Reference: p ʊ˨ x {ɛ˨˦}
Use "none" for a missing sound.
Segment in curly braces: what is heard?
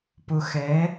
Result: ɛ˨˦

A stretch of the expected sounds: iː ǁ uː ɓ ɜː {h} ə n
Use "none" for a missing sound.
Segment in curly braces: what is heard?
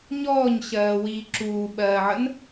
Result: ʕ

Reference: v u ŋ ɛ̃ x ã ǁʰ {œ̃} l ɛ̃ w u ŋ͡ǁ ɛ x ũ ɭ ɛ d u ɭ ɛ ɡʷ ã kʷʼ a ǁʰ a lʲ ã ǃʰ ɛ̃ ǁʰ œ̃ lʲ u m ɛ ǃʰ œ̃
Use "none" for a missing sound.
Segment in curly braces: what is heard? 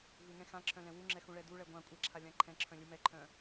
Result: œ̃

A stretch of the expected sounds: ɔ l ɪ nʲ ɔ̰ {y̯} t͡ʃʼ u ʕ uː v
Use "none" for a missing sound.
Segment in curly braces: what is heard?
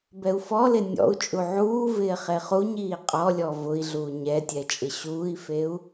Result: u̯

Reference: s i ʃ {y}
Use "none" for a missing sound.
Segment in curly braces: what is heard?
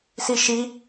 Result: i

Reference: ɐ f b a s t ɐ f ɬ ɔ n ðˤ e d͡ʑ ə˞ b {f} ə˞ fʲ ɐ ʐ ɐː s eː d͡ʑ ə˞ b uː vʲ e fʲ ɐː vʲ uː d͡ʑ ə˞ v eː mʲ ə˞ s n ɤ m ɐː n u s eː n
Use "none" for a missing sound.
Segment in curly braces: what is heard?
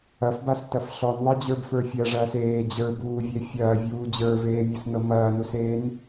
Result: f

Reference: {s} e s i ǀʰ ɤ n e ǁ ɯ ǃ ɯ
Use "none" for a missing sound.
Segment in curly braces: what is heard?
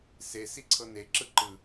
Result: s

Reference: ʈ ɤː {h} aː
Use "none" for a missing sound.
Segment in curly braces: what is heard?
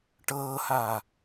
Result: h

